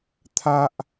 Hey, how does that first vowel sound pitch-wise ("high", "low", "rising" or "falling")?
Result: high